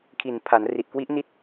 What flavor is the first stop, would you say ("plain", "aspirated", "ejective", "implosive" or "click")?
aspirated